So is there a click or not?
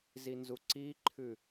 yes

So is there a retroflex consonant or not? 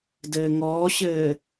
no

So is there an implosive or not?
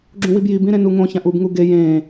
no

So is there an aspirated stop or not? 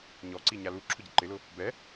yes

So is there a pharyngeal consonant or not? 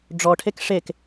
no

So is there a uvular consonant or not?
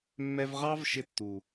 yes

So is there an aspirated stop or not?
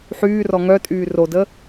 no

